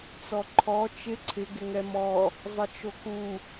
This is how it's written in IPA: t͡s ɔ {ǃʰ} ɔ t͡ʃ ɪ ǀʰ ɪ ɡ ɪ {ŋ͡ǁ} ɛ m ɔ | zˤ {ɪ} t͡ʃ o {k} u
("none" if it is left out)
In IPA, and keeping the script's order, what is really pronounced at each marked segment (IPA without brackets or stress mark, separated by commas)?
ǃʰ, ŋ, ɪ, k